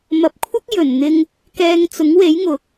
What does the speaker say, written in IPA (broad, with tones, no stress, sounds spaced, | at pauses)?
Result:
m ɐ˨˥ p̚ kʷʰ ɐ˥ k̚ j ɵ˨˩ n n̪ ɪ˧ ŋ | k ɛː˧ ŋ t͡s ʊ˨˥ ŋ w e˨˥ j ŋ ʊ˨˥ k̚